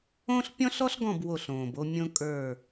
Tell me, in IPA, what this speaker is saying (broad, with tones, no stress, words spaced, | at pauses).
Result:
õ˦ɬpʲɔ̃˦ɬ ɔ˦ɬɡɔ̃˦˨b wo˦˨ɬõː˨bo˦ mʲõ˦kʼə˞˦˨